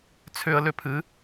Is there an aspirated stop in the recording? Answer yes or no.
yes